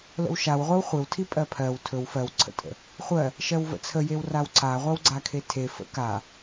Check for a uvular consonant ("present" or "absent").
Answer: present